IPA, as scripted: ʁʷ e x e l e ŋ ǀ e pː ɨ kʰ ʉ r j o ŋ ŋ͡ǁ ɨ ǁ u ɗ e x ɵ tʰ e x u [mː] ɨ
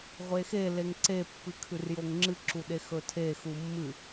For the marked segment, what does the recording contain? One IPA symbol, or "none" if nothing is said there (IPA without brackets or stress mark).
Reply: mː